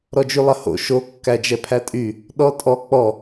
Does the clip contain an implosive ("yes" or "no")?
yes